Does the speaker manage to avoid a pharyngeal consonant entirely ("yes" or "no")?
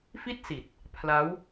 yes